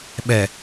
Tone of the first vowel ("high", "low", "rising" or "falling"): low